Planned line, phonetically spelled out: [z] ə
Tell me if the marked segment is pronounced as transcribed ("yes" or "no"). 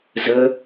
yes